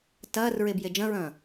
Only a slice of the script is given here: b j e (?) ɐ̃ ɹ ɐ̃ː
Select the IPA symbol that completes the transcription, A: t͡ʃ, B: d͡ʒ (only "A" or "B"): B